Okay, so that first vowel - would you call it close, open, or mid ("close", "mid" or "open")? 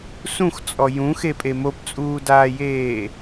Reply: close